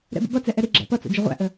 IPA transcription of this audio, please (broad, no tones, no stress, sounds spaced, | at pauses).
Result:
ɾ ɛ̰ b ə̰ b ʌ t͡s ɛ ʔ ɛ ɾ i ɡ͡ǁ æ̰ p ʌ t͡s o̰ d͡ʒ ə ʁʷ æ̰ ʔ ə